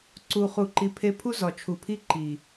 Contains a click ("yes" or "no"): yes